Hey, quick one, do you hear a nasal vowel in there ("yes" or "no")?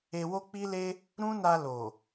yes